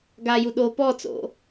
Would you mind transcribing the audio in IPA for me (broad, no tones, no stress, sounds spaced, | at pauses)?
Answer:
ɡ a j u ɗ o p ɔ t͡s o̰